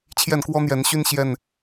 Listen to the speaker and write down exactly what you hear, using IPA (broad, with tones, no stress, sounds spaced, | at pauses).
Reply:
t͡ɕʰ j ɛ˥˨ n k w ɔ˦ n̪ j ɛ˨˦ n ɕ y˦ n ɕ j ɛ˥˨ n